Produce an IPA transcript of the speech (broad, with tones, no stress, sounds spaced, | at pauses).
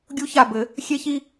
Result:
ɡʲ u˦ ç a˦˨ b ɘ˨˦ | xʲ e˦ ç i˦